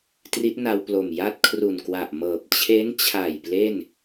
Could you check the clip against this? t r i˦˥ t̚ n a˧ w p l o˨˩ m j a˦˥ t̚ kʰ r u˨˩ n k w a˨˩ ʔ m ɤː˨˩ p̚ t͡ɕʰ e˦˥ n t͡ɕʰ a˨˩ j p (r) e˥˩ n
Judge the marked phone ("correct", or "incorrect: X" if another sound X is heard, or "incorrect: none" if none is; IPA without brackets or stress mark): incorrect: l